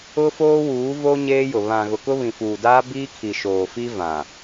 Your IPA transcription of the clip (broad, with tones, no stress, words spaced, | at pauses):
ʊ˦ foː˦wuː˨˦vo˦ ɲeː˦jʊ˨ βã˨ ɣʊ˨kʊ˦ βĩ˨fuː˨daː˦ biː˦kʰi˨ʃoː˨ fi˦ vã˨